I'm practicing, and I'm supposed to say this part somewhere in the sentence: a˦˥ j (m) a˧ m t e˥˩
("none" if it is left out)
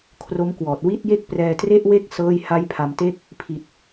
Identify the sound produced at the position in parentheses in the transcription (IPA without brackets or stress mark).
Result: pʰ